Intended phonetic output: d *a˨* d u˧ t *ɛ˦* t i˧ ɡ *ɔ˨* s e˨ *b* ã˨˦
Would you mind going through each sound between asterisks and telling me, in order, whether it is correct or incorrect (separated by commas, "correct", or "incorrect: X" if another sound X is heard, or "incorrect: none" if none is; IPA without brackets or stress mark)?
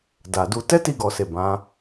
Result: correct, correct, correct, correct